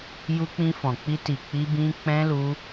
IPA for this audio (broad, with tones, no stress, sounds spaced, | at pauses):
j u˦ k͡p ĩ˦ f ɔ̃˧ k͡p i˦ t i˧ k͡p i˦ b ĩ˦ k͡p ɛ̃˦ l u˦